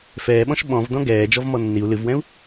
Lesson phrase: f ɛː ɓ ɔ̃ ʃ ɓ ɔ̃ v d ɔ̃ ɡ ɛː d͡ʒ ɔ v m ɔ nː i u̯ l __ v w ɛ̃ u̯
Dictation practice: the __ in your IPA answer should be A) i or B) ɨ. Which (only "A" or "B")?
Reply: B